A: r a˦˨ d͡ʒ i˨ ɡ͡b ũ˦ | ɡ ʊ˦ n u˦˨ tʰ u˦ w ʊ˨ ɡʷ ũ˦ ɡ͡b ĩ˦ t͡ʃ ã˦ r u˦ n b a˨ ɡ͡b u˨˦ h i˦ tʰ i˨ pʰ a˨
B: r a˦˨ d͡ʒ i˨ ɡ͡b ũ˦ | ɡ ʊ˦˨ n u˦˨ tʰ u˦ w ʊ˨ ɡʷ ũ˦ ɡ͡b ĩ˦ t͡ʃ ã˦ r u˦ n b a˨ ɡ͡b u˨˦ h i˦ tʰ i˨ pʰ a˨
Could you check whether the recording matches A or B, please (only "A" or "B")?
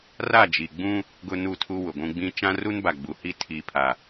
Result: A